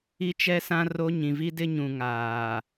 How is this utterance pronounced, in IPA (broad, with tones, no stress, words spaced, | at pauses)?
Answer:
i˦t͡ʃɛ˦sã˦ ro˦ ɲĩ˨vi˦dɪ˦ɲũ˨ ŋaː˨